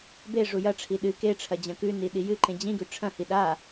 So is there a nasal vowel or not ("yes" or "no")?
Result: yes